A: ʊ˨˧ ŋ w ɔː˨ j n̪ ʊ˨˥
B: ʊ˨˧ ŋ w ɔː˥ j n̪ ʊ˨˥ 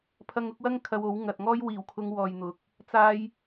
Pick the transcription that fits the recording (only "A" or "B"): A